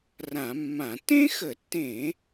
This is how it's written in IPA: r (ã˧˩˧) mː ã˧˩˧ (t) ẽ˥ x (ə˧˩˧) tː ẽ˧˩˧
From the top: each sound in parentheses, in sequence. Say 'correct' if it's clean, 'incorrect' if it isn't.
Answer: correct, correct, correct

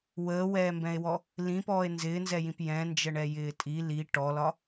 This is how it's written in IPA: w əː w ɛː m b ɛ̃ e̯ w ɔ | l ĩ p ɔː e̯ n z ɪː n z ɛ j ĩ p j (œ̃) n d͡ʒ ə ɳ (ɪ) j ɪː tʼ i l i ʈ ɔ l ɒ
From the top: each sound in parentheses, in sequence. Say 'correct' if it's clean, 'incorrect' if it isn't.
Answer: incorrect: ɛ̃, incorrect: ɛ

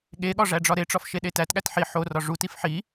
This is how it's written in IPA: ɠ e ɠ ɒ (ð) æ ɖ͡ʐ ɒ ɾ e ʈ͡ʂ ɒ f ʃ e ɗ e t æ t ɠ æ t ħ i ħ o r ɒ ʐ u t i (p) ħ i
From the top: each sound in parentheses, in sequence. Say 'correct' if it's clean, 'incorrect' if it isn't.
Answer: incorrect: ʐ, incorrect: f

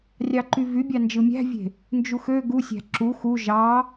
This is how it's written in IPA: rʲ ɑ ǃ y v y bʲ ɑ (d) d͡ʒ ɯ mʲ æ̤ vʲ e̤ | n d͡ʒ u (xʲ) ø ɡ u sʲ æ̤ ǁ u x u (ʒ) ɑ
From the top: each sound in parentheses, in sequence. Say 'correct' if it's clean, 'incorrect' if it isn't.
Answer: incorrect: n, incorrect: x, correct

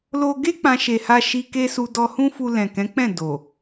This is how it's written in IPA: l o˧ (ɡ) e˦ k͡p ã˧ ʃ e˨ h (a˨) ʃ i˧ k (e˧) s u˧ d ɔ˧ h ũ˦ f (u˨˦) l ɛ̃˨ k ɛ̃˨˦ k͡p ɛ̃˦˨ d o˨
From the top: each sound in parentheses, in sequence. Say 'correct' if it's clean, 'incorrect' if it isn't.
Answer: correct, incorrect: a˧, incorrect: e˦, incorrect: u˧

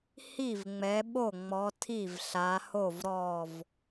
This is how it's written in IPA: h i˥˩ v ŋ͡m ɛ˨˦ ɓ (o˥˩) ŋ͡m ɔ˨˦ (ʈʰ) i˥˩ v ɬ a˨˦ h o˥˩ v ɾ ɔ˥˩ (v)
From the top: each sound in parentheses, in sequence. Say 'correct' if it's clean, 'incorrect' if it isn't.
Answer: correct, incorrect: tʰ, correct

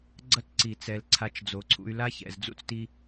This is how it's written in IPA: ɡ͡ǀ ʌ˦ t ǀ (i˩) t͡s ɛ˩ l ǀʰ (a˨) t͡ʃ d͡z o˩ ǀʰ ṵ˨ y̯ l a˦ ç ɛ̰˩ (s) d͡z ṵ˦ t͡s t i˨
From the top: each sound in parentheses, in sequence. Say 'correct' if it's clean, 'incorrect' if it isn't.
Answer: correct, correct, incorrect: z

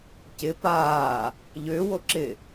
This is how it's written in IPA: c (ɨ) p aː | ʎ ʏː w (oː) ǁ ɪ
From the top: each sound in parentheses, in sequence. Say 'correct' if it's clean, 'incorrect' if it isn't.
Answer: incorrect: ɪ, incorrect: o

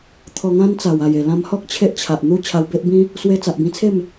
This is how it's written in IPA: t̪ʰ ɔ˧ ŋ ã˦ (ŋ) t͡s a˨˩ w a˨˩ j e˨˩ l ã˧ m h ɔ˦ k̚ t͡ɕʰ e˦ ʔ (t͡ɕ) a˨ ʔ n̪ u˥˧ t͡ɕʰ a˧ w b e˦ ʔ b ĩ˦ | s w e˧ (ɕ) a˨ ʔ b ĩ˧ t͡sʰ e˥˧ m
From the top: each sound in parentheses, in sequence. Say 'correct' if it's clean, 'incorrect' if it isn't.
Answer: incorrect: n, incorrect: t͡ɕʰ, incorrect: t͡s

